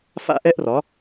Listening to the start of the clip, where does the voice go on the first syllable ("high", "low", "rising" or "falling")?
high